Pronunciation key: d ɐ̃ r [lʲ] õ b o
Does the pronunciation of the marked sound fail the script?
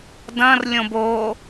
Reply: no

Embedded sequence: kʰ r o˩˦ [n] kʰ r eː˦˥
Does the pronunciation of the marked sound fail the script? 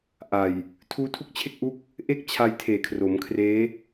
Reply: yes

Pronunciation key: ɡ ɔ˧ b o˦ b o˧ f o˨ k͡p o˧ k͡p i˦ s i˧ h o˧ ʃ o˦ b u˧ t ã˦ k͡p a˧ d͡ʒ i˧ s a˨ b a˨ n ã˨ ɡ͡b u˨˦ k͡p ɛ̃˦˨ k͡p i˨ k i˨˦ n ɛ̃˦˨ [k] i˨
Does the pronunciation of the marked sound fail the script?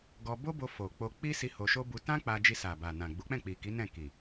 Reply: no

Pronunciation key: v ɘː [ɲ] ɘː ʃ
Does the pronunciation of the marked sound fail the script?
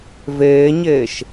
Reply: no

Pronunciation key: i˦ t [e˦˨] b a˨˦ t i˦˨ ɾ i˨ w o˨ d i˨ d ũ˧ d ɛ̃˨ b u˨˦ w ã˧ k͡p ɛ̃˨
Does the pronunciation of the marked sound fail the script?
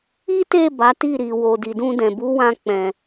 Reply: no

